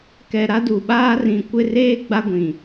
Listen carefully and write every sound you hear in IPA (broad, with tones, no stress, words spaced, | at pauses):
kɛ˨ɾa˦du˨ ɓaː˦ rĩ˨kʷɪ˦˨reː˦ ɡ͡ba˦ɡʷĩ˨